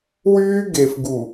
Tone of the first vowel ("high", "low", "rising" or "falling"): high